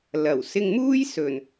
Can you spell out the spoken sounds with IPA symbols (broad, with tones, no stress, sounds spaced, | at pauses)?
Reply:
l ɐ˨˩ w s ɪ˧ ŋ m uː˥ j s ɵ˨˩ n